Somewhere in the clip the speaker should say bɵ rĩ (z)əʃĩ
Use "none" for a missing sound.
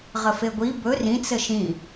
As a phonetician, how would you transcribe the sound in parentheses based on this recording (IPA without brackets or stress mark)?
t͡s